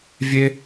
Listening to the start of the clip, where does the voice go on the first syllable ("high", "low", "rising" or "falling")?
high